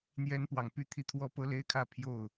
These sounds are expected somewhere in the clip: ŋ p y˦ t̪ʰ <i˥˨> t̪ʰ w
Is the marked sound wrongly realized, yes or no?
no